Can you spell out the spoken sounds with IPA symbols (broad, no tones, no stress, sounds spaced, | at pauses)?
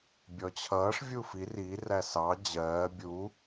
bʲ ɔ t͡ɕʰ ʌː ʂ vʲ uː f i r i r æ s ɑ d͡ʑ ɜː bʲ u